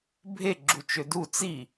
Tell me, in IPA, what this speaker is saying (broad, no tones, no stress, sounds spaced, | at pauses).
bʱ e ɡ͡ǁ u t͡ʃ ø d u t͡s i